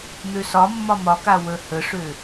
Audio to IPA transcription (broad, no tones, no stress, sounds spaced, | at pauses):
n̪ ø s ɒ mː ɒ m ɒ k a w ə h ə ʂ ø